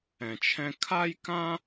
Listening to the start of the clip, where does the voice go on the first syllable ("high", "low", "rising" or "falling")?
low